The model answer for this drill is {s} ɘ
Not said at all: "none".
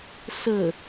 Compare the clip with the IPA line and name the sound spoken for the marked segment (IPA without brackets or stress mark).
s